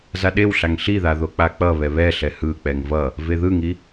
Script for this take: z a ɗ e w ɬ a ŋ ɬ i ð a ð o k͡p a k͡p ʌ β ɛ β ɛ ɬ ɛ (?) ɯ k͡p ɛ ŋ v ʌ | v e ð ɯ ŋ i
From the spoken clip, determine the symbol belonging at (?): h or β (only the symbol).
h